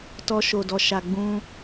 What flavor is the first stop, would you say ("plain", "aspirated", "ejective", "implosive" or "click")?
plain